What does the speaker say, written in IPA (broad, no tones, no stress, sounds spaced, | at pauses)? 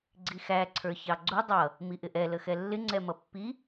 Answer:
ɡ͡ǀ i x æ ǀʰ ə˞ ç ɑ ɡ͡ǀ u dˤ ʌ | m i ʔ ɪ ʔ ɛ l ə x ɛ lː ɪ ŋ͡ǀ ɛ m ʌ pː i